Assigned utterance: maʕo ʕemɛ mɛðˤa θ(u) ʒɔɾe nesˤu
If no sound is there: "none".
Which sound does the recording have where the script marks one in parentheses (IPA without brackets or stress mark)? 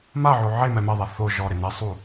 o